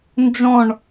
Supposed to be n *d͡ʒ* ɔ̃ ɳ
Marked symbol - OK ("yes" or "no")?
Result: yes